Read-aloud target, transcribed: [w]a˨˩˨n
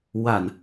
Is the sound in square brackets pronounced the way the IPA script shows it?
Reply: yes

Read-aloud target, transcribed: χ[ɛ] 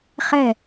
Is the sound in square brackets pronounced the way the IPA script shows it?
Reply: yes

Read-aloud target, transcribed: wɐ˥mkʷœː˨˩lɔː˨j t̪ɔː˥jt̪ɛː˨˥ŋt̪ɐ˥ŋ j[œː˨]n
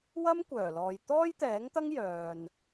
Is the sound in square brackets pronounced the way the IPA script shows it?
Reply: yes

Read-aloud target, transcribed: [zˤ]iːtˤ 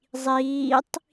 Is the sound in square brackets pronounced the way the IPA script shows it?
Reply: yes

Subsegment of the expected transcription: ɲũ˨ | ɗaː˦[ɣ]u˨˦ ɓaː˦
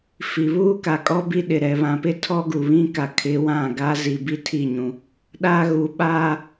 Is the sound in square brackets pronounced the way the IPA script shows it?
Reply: yes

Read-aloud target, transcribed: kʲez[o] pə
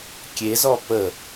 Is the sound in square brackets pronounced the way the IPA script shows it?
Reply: no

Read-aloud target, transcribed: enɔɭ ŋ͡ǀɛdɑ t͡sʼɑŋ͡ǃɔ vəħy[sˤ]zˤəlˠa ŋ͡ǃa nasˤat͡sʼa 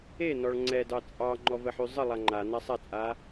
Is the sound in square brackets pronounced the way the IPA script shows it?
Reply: no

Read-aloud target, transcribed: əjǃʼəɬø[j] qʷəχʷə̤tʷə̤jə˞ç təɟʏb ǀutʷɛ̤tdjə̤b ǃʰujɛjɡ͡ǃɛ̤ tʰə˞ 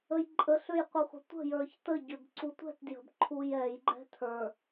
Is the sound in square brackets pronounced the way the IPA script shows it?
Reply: yes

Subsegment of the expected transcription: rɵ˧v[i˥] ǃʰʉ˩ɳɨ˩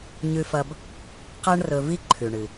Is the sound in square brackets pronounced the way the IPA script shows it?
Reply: yes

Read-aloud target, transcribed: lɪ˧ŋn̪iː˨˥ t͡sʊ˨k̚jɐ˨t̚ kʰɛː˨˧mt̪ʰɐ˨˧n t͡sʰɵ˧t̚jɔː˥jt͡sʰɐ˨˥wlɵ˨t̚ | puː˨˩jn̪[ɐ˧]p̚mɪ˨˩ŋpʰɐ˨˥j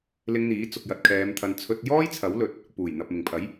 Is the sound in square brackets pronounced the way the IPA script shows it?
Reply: no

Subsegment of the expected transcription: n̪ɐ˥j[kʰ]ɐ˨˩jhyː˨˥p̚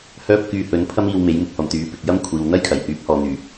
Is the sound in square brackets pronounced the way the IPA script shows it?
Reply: yes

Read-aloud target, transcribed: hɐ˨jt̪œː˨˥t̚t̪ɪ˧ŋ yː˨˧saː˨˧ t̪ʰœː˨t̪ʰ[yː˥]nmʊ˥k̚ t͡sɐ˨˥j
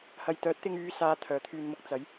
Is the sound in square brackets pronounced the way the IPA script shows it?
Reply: no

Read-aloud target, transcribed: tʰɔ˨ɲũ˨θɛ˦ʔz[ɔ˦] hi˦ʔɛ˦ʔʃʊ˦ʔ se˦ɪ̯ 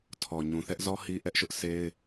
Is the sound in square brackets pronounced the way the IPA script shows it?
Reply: yes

